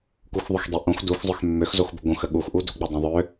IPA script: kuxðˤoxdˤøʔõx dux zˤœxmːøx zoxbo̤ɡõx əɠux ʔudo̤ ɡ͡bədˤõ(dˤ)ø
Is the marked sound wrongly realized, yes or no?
yes